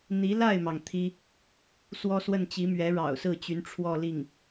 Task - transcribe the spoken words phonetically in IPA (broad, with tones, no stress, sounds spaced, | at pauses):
n̪ i˧˥ l a˥˩ ɪ̯ m ɑ˩ ŋ t̪ʰ i˥ | s w ɔ˥ s w ə˥˩ n t͡ɕ i˧˥ m ɥ ɛ˧˥ ɻ ɑ̰˨˩ ʊ̯ s ɹ̩˥˩ t͡ɕ y˧˥ n ʈ͡ʂʰ w ɔ˥˧ l i˥˩ ŋ